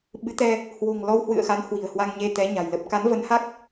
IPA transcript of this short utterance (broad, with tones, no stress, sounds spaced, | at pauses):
ɓ ɨ˨˦ t̪ ɛ˧ | h w o̤˨˩ ŋ l ɔ˧ w h w ɨ̰˧˨ ə̯ x a˨˦ n h w i̤˨˩ ə̯ h w a˧ ŋ ɲ e˧ t̪ ɛ˨˦ ɲ a̤˨˩ j l ə˦˥ p̚ k a˨˦ n v ə˨˦ n h a˦˥ k̚